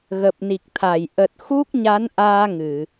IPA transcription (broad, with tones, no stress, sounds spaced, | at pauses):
ɣ ə˨˩ p̚ n i˨˩ k̚ t̪ʰ a˧˩ j ʔ ə˨˩ t̚ x u˦˥ k̚ ɲ a˨˦ n ʔ aː˧ ŋ ɨ˧˩˨